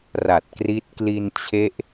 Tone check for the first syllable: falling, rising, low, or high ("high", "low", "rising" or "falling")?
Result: low